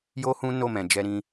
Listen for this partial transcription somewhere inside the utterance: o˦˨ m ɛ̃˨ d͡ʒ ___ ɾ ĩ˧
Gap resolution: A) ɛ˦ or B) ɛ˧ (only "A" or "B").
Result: B